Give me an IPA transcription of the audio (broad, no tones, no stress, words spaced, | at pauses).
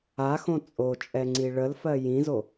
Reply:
axõ t͡sʼot͡ʃʼɛŋ͡ǀi ɭəlfɜ jĩzo